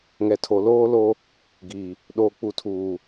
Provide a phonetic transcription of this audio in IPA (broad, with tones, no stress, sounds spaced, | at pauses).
ŋ ɛ˨ tʰ o˨ l oː˦ l o˦ | ɡ i˨ | ɗ oː˨ k͡p u˨ tʰ uː˨